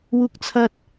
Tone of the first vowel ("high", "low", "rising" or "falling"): high